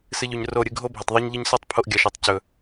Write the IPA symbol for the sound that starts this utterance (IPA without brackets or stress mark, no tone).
s